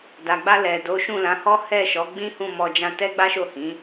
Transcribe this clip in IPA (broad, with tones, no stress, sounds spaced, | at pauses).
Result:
d a˨ ɡ͡b a˧ l ɛ˨ d o˨˦ ʃ ũ˦˨ l ã˨˦ h ɔ˦ h ɛ˦˨ ʃ ɔ˨˦ ɡ͡b ĩ˦ h ũ˦˨ m ɔ˧ d͡ʒ ã˦ t ɛ˦ ɡ͡b a˦ ʃ o˦˨ h ĩ˨˦